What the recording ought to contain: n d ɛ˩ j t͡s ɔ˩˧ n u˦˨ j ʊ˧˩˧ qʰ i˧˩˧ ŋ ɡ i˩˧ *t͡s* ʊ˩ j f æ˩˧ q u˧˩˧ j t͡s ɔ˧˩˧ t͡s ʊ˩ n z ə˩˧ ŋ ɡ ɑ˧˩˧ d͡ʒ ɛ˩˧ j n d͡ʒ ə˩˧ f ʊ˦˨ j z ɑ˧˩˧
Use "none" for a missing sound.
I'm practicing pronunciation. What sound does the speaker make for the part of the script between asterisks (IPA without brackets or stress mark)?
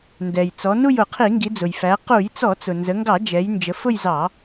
d͡z